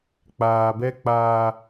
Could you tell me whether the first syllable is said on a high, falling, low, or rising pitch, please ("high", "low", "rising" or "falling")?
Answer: low